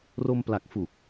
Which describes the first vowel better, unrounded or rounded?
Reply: rounded